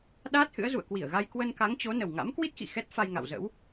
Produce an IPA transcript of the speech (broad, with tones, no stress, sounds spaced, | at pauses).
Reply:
ɗ aː˦˥ t̚ h ɨ̰˧˥ ə̯ z ṵ˧˨ ə̯ k w i˧˩ ə̯ ɣ a˧ j k w ə˧ n k a˨˦ ŋ t͡ɕ o˨˦ n ə˨˩ w ŋ a̰˧˥ m k w i˦˥ t̚ x ḭ˧˨ x ɛ˦˥ t̚ f a˧ j ŋ a̰˧˨ w z ə̰˧˥ w